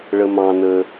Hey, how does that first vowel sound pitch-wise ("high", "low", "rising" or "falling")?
low